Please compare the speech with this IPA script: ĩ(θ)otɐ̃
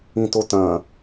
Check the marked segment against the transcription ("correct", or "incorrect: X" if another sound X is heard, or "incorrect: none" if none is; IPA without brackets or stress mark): incorrect: t